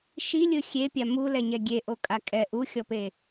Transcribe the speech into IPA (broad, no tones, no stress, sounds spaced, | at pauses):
ʃ i lʲ ɯ xʲ e pʲ a m u l ɛ ɲ ɛ ɡʲ e ʔ o kʼ a kʼ ɛ ʔ u xʲ ɔ p e